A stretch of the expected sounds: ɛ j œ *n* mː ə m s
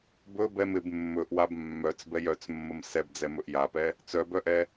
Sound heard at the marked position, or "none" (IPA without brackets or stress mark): t͡s